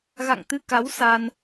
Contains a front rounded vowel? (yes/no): no